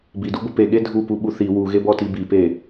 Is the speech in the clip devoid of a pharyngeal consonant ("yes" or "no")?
yes